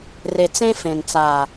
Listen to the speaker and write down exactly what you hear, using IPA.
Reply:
r e˨ t͡s ẽ˧ f ẽ˨ n t͡s a˨

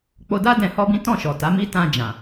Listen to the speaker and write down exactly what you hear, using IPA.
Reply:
k͡p o˧ d a˦ d ɛ̃˧ h ɔ˦ b ĩ˦ t ɔ̃˦˨ ʃ ɔ˨ t a˨˦ m i˦ t ã˧ d͡ʒ ã˨

